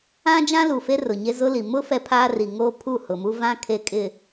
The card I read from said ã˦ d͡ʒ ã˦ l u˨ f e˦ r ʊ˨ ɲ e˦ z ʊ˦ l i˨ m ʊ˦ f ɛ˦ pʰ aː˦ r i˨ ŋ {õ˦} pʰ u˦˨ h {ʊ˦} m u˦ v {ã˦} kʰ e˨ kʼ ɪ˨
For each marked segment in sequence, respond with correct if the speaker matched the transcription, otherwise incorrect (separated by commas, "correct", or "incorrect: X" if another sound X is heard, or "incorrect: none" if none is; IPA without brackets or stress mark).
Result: incorrect: o˦, incorrect: ʊ˨, correct